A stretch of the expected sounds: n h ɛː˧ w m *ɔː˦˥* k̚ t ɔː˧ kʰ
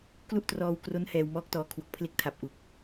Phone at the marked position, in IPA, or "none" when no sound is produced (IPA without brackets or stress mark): ɔː˦˥